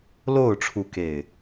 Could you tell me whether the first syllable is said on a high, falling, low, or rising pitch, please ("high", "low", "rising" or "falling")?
falling